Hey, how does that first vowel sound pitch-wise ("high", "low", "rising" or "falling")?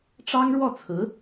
high